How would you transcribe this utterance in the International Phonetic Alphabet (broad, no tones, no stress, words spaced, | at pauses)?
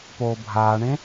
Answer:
poːbʱaːɳẽ